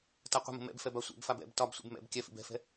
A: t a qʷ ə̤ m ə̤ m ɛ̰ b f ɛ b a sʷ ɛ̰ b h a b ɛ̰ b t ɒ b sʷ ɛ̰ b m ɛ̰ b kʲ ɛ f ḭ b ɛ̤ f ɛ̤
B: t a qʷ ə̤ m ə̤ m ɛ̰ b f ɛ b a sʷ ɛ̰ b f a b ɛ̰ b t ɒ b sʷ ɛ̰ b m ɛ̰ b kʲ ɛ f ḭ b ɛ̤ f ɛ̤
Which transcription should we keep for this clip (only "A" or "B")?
B